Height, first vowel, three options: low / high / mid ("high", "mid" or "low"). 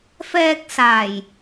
mid